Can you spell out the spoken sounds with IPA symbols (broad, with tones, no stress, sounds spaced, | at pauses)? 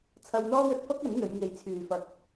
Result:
t͡sʰ ɐ˧ w n̪ ɔː˥ w ɵ˧ t̚ f ɐ˥ k̚ ɐ˨˥ n n̪ ɵ˨˧ ɥ ŋ e˨ j t͡sʰ yː˨ f ɐ˧ k̚